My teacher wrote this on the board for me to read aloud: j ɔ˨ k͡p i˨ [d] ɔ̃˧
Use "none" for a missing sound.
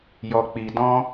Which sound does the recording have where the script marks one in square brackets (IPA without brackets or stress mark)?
d